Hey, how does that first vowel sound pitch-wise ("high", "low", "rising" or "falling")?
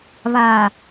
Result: low